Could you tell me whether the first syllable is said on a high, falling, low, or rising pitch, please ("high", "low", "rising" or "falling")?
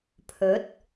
rising